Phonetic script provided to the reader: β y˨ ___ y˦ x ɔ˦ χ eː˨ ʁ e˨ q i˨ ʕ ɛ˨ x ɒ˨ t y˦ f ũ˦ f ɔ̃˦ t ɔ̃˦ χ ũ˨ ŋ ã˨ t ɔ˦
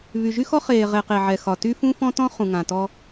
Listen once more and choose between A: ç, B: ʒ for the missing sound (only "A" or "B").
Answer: B